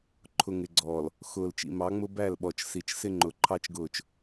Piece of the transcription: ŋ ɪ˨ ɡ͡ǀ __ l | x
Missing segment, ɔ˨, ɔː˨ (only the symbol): ɔː˨